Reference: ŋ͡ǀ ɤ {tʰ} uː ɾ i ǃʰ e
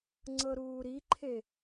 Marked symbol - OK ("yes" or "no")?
no